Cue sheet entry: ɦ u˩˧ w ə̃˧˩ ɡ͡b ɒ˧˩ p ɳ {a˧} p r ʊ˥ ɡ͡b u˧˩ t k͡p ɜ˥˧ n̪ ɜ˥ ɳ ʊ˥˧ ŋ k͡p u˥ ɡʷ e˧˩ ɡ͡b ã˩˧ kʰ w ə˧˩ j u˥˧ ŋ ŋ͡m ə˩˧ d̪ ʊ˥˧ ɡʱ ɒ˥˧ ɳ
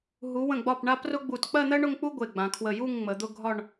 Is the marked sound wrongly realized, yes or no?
no